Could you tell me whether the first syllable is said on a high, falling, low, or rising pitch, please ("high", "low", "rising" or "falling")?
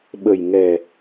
low